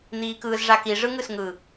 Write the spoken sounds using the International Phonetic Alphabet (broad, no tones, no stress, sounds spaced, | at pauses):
n̪ iː k ɯː z ʐ a k i ʐ ɯ ŋ ɯ s ŋ ɯ